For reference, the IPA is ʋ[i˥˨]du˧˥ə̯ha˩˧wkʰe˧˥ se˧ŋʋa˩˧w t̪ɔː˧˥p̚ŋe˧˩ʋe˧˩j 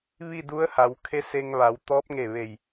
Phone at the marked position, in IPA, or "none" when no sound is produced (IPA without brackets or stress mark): i˥˨